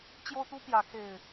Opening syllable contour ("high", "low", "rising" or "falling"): high